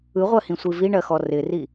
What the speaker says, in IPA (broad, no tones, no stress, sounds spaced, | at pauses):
ɯ ʁʷ ɜ h ĩ sʷ i v i ɳ ɜ x ɔ r ɪ r i